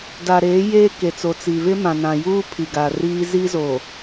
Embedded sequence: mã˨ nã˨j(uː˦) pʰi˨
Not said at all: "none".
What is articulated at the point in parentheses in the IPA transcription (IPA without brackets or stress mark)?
uː˦